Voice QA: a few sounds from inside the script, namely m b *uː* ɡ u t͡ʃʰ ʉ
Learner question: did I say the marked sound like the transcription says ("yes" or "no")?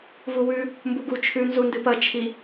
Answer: no